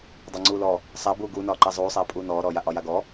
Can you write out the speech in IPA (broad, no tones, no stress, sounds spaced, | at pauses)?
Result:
dˤ a ŋ͡ǀ uː l ɔ | sˤ a b uː ɡ uː n ɒː ǃ a zˤ uː sˤ aː pʼ uː n ɔː ɾ ɔː j a ʔ ɒ j a ɡ ɔ